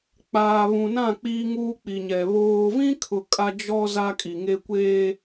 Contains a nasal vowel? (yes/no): yes